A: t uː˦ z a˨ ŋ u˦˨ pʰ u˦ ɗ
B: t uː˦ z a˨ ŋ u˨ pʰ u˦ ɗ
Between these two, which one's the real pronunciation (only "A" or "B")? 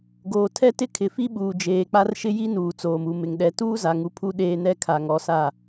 B